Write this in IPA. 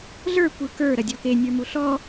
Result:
ɮ ə˞ kʷ ɯ k ə˞ ɾ ɐ dʲ ɔ k e nʲ ə˞ m u ɬ ɔ

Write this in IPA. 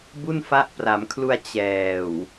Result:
b u˥˩ n f a˦˥ ʔ p r a˩˦ m kʰ l u˧ a̯ t͡ɕ ɛː˨˩ w

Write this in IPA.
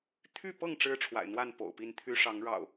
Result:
t̪ʰ y˥˨ p ɤ˥˨ ŋ ʈ͡ʂ ɻ̩˦ ʈ͡ʂʰ w a̰˨˩ ɪ̯ n̪ w a˥˨ n p o̰˨˩ ʊ̯ p i˥˨ n t̪ʰ y˦ ʂ ɑ˨˦ ŋ ɻ ɑ̰˨˩ ʊ̯

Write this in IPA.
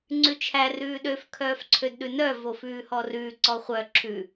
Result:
ŋ͡ǀ ʉ t͡ʃʰ æ r ʉː ɗ ø f kʰ œː f ǀʰ ø d ɗ ʉ n œ v o f ʉː h ɔ r ʉː ǀ ɔ χʷ œ ǁʰ ʉ

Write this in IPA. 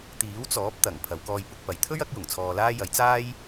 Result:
t̪ iː˨˥ w t͡s ɔː˨˥ p̚ t̪ ɐ˨˩ ŋ pʰ ɐ˨˧ w k ɔː˧ j p ʊ˨˥ k̚ p ɐ˨˧ j t̪ʰ ɵ˥ ɥ ɐ˨˥ k̚ j ʊ˨˩ ŋ t͡sʰ ɔː˧ l aː˥ j ɐ˨˥ j t͡s aː˥ j

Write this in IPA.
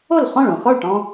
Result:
o˥˩ l χ ɔ̃˥˩ ɭ õ˧˩ x ɔ˥˩ ɭ ʈ ɔ̃˧

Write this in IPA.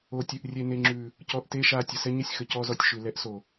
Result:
o˨ tʲ ʉ˨ ʔ rʲ e˨ n e˨ ŋ͡ǁ ʉ˨ | c ɔ˧ ʔ t e˦ ʃ a˧ tʲ ə˨ s ɛ˦ ɲ ə˦ sʲ x ə˨ c ɔ˦ z ɔ˧ tʲ ʃ ʉ˨ l ɛ˦ ʔ s o˨

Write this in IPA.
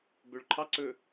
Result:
b ø ɭ ǃʰ ɑ ǀ ɵ

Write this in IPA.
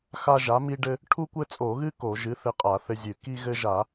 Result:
x a˦ ʒ a˨˥ m i˦ ɖ ɘ˦ | ʈʰ u˦ kʷ ɘ˦ t͡sʼ o˧˩˧ ɣ ɨ˦ k o˧˩˧ ʒ ɨ˨˥ θ ɘ˦ qʼ a˧˩˧ θ ɘ˦ zʲ ɨ˧˩˧ k i˦ ɣ ɘ˦ ʒ a˧˩˧

